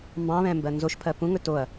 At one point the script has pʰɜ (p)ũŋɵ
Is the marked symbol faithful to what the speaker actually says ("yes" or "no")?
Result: yes